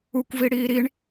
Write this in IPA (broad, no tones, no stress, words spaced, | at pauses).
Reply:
ukʷvi ɽiːɾiɳ